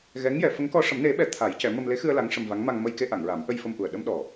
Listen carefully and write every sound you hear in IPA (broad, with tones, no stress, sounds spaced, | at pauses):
ɣ ɛ˧˥ ŋ j ɛ˨˩˦ f ə˧˥ ŋ k ɔ˧ ʂ ə˨˩˦ m n e˨˩˦ ɓ ɛ˨˩˦ t̪ʰ a˨˩˦ j c ɛ˨˩˦ m ə˧ m l e˧˥ x ɨ˧ ə̯ l a˧˥ ŋ ʂ ə˧ m v a˧˥ ŋ m a˧ ŋ m ə˧ j k e˧ ʔ a˨˩˨ ŋ ɹ a˨˩˦ m ʔ ə˧ j f ə˧ m ʔ u˨˩ ə̯ ɗ ə˧ m ɗ ɔ˨˩